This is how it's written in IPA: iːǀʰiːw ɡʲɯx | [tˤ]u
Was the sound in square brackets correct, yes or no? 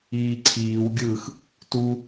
no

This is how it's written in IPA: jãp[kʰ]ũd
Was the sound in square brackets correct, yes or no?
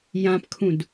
yes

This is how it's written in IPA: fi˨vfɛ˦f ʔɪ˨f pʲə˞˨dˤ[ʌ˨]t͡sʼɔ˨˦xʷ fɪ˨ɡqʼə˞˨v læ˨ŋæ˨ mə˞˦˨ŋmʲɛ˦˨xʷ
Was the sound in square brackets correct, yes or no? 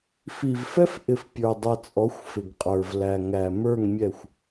yes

